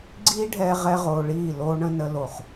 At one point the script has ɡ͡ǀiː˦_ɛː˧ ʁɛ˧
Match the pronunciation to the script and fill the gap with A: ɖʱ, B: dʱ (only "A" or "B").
A